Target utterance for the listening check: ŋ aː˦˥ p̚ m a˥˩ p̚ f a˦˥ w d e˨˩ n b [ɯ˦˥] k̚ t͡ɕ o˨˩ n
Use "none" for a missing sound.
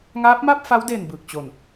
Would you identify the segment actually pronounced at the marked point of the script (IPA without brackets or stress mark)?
ɯ˨˩